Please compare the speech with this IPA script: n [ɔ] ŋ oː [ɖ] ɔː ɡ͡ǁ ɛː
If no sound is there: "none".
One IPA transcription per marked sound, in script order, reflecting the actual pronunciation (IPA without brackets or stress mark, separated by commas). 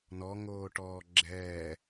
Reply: ɔ, ʈ